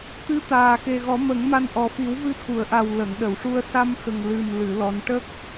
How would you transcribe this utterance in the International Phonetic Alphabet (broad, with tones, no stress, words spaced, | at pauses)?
t̪ɨ˧˥ t̪aː˨˩xe˨˩ɣɔ˨˩˦ mə˨˩˦ŋma˧n ʔɔ˨˩ fi˨˩˦wvɨ˧t̪ʰu˨˩˨ə̯ʔa˨˩w lə˨˩˨ŋɗə˨˩˨wʂu˧ə̯ sa˧mxə˨˩ŋ lɨ˨˩mlɨ˨˩˨ lɔ˧˥n ʈə˦˥k̚